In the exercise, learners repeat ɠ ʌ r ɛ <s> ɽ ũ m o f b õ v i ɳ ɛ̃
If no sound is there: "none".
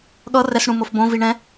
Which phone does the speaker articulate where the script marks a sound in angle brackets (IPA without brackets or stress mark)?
s